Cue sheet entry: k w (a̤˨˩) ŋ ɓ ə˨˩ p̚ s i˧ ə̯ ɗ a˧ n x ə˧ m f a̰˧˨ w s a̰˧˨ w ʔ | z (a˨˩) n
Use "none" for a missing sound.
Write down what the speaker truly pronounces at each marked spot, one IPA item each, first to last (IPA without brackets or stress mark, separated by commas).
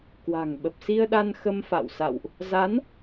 a̤˨˩, a˨˦